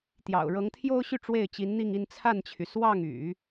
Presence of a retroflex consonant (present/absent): present